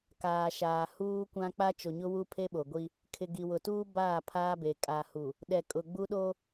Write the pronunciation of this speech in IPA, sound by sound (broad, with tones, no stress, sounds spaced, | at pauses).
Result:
k aː˨ ʃ aː˨ h uː˦ kʷ ã˦ k͡p a˦ t͡ʃ o˨ ɲ ʊ˦ w u˦ pʰ e˦ ɓ o˨ ɡʷ i˦ | kʰ ɪ˨ ɡ i˨ w ʊ˨ t uː˦ b aː˦˨ pʰ aː˦ b e˨ kʼ a˨ h u˨ | ɗ ɛ˨ kʼ ʊ˨ ɡ͡b u˦ ɗ o˦